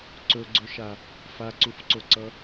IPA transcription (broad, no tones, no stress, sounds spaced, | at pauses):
ǀ ɵ ɡ͡ǀ ɵ ʃ a | f a ǀ u f ǀ o ǀ ʌ